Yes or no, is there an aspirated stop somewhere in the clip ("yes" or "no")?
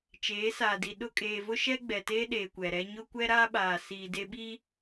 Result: no